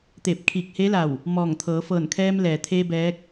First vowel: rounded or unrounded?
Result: unrounded